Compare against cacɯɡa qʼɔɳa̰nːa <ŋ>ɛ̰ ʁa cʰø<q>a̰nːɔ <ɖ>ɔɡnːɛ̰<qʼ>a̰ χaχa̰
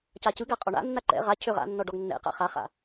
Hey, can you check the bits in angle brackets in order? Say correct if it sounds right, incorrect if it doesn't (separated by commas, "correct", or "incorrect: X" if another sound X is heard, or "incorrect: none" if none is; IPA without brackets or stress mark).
incorrect: ǃ, incorrect: ʁ, correct, incorrect: q